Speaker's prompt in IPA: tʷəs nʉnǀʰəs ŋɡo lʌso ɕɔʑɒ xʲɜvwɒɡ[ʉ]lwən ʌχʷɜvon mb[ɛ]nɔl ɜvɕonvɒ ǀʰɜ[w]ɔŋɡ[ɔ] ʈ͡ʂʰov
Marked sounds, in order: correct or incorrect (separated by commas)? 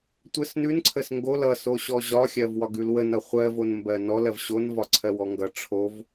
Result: correct, incorrect, correct, incorrect